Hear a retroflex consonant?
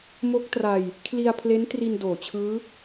no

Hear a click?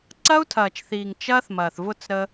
yes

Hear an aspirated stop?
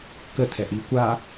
yes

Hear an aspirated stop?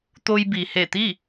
no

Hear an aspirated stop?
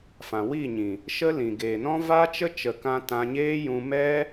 no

